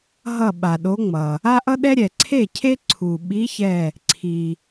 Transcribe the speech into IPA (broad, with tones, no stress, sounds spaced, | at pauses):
ɦ ʌ˧˩ ɓ a˩ ɗ o˨˦ ŋ͡m ʌ˩ | a˦ ʔ ʌ˦ ɗ ɛ˦ ɾʲ ɛ˩ ǀʰ e˥˩ cʰ e˦ ǀʰ u˩ ɓ i˨˦ ç ɛ˧˩ | ǀʰ i˩